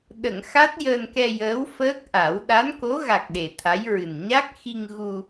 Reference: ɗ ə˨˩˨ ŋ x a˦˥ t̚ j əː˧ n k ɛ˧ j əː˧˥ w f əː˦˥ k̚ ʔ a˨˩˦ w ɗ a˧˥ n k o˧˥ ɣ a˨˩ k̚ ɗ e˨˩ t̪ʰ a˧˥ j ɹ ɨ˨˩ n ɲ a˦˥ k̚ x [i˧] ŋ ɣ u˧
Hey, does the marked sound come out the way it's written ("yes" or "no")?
yes